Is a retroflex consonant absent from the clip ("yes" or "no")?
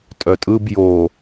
yes